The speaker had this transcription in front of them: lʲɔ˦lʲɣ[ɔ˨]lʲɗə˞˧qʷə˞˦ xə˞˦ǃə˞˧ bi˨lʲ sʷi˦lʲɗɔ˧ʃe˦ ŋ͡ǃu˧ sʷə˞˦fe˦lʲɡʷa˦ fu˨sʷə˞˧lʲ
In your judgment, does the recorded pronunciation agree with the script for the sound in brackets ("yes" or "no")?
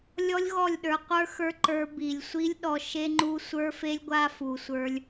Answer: no